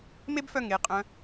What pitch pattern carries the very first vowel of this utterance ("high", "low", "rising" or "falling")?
high